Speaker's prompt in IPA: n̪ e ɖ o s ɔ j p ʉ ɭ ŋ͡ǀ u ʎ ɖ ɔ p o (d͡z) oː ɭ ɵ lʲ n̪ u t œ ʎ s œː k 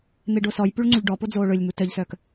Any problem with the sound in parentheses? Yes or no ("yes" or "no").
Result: no